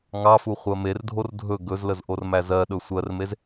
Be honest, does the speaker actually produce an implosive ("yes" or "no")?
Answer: yes